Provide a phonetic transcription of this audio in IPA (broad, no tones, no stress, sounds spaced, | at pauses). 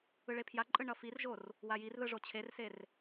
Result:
ɯ ɭ e pʰ j a ǃʼ ɯ ɳ ʌ f i r ʒ o r | w a j i r ð ɯ ʐ o t͡ɕʰ e r s e r